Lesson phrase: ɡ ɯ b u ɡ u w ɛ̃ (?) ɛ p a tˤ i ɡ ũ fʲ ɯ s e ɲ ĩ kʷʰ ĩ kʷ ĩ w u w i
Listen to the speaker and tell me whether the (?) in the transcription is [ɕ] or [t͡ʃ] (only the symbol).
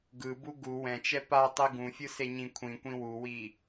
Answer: t͡ʃ